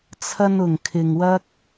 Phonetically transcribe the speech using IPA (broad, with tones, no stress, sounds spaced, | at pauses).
t͡sʰ ɐ˧ n ʊ˨˩ ŋ kʰ ɪ˨ ŋ w ɐ˥ k̚